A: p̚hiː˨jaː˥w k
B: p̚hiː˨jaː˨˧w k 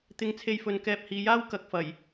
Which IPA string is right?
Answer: A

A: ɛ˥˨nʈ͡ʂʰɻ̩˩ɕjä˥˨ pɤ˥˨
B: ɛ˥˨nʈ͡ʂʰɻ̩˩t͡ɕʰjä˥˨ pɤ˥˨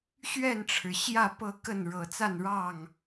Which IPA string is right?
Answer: A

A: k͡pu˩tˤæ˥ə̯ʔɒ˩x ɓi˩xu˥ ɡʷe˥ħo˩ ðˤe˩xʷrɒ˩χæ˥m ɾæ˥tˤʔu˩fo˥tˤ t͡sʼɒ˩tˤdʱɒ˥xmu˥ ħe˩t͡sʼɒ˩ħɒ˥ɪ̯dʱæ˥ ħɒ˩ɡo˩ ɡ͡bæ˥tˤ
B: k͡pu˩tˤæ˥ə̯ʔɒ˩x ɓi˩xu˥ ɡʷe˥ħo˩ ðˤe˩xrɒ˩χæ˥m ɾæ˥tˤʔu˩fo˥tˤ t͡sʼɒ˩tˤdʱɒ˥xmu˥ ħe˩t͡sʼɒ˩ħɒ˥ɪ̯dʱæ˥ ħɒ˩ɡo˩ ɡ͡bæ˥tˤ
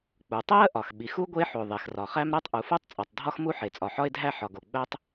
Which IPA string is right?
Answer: B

